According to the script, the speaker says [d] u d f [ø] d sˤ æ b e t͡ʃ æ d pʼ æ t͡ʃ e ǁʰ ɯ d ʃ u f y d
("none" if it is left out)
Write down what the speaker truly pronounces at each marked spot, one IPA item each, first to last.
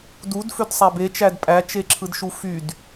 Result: d, ø

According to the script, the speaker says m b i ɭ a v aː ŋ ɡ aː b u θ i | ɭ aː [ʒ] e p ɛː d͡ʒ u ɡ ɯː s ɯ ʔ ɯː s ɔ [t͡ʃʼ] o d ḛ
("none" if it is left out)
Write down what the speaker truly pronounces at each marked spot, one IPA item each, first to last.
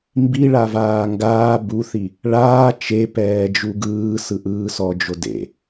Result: t͡ʃ, d͡ʒ

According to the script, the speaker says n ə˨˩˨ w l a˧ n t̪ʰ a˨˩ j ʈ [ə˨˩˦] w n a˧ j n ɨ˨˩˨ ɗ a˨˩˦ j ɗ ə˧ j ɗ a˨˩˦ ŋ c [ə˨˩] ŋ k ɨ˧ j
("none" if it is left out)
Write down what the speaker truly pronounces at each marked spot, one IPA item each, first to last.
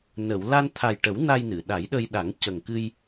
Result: ə˨˩˦, ə˨˩

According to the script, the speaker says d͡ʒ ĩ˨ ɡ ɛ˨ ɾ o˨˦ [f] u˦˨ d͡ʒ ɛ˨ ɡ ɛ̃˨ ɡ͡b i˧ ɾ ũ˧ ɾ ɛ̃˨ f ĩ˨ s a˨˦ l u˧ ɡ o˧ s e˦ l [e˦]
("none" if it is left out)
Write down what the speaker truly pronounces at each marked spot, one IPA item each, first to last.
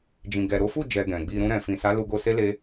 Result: f, e˦

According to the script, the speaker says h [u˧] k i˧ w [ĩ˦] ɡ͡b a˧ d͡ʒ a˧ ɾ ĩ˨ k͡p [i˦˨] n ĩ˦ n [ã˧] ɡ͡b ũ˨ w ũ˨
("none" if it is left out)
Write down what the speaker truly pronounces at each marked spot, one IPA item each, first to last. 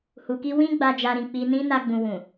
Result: u˨, ĩ˦, i˧, a˧

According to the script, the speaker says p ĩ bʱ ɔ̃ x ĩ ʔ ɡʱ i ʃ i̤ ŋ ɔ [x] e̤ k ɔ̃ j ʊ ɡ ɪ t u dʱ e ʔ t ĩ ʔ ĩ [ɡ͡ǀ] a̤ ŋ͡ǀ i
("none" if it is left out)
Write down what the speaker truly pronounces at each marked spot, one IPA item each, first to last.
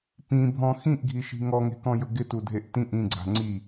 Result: ŋ, ɡ͡ǀ

